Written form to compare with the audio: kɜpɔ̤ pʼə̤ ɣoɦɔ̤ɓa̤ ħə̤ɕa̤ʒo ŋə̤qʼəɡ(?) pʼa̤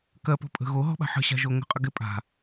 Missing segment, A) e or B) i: A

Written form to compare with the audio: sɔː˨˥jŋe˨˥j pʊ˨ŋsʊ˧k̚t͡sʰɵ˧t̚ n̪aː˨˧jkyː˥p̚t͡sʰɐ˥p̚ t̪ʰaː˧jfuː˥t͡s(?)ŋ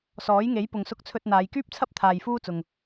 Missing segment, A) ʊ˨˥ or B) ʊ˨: B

